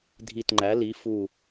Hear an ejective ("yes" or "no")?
no